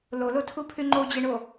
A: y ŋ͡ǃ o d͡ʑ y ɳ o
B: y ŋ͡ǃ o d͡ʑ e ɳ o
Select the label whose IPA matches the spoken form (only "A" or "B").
B